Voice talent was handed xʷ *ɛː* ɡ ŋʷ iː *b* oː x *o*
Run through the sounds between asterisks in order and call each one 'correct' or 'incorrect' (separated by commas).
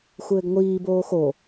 incorrect, correct, correct